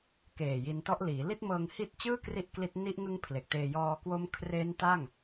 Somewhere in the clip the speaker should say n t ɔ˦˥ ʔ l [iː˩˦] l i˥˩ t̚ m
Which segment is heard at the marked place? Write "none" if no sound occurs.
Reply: iː˩˦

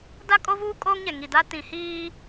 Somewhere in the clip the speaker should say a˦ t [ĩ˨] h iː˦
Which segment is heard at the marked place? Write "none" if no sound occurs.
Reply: ĩ˨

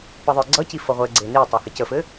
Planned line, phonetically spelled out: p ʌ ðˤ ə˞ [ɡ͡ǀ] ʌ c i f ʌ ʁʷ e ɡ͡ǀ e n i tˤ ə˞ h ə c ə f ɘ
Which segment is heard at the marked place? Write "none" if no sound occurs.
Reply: ɡ͡ǀ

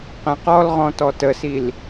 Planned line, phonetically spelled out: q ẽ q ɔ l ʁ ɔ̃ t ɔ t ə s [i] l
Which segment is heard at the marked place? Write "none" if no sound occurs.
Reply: i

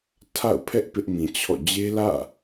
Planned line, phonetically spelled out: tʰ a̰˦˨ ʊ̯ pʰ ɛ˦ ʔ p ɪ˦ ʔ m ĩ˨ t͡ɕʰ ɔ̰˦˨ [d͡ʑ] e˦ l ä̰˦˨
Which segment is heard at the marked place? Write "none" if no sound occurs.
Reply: d͡ʑ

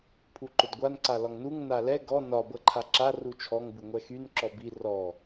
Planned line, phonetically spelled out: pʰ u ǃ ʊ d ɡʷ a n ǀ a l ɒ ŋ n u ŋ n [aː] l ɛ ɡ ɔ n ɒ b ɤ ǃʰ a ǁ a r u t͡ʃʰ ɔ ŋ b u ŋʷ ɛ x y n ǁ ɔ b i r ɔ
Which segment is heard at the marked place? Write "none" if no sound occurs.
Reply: a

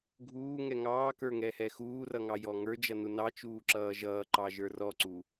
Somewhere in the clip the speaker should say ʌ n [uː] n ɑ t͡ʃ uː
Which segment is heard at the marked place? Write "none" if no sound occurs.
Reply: u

